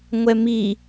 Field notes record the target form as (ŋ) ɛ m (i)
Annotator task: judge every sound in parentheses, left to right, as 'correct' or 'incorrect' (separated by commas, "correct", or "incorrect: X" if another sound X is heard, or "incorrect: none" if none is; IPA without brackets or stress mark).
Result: incorrect: ŋʷ, correct